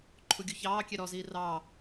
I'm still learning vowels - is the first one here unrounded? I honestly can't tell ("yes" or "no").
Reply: no